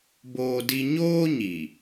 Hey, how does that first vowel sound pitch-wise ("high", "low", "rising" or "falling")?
high